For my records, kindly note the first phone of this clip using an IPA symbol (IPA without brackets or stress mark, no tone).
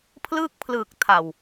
pʰ